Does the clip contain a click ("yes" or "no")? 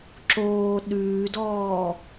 yes